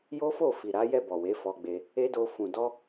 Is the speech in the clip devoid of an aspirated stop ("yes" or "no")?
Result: yes